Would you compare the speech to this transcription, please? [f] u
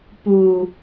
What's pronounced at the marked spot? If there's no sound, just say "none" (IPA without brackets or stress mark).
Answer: p